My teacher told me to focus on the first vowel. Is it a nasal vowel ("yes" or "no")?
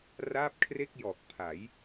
no